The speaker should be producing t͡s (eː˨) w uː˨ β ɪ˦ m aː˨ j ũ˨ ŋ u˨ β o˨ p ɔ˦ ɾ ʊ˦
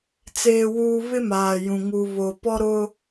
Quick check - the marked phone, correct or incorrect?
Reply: correct